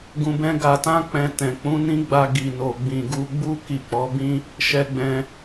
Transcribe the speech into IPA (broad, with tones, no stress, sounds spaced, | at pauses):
ɡ ũ˧ b ɛ̃˦ ɡ a˧ t ã˦ k͡p ɛ̃˧ t ɛ̃˨ k͡p ũ˨˦ n ĩ˦ ɡ͡b a˧ ɡ i˨ n o˨ ɡ͡b ĩ˨ ɡ u˧ ɡ͡b u˦ k i˦˨ k͡p ɔ˨˦ b ĩ˦ | ʃ ɛ˧ ɡ͡b ɛ̃˧